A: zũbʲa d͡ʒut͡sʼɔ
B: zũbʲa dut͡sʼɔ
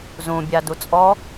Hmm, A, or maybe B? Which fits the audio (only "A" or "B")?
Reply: B